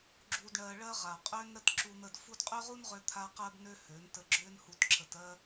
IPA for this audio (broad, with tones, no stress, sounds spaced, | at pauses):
ɡ͡ǁ u˧ d ɳ ɜ˧ ɭ ɜ˦ ʁ a˨ qʼ ø˧ n ɾ ə˧ t ǁ u˧ n̪ ə˧ d f u˦ d qʼ ø˦ ʁ u˦ n ʁ ø˧ t̪ʰ a˧ q ɜ˧ b n ø˧ h ø˨˦ n t ə˧ ɡ͡ǁ ø˦ n h u˧ t ǁ ə˨ t ɜ˧